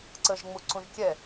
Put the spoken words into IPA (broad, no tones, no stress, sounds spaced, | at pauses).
ǀ ə ʒ ŋ͡m u ǀ ũ ʒ kʲ ɛ